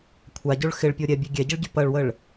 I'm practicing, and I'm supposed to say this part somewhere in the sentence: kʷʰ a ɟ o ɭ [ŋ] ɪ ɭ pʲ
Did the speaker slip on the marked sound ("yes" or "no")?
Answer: yes